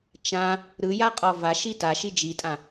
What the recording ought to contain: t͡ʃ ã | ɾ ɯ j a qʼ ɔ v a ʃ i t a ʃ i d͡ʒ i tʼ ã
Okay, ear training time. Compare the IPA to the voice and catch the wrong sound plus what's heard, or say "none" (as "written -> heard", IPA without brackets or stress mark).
none